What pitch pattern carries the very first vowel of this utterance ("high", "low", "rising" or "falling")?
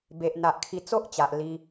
low